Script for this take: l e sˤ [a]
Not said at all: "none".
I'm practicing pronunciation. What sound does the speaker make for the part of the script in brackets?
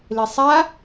a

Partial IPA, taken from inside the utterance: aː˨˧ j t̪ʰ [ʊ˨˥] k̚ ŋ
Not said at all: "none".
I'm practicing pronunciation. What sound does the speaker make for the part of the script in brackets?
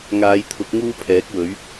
ʊ˨˥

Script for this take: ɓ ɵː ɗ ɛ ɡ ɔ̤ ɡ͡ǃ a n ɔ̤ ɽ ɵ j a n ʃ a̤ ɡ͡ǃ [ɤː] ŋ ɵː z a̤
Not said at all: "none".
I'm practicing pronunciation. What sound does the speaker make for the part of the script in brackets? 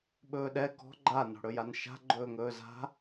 ɵː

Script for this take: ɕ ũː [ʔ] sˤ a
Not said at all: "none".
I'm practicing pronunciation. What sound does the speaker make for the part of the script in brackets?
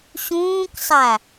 k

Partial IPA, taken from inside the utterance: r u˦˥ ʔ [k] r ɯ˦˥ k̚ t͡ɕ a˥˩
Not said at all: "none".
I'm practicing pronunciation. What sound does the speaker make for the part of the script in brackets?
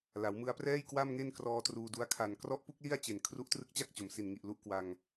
t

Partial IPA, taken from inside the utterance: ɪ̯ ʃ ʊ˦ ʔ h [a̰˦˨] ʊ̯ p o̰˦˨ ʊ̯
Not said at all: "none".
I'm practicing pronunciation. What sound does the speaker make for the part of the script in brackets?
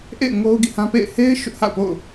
a̰˦˨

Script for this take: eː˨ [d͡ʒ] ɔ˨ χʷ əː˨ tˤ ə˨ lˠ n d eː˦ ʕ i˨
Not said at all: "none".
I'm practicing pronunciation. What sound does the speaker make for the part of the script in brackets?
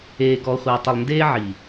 ɡ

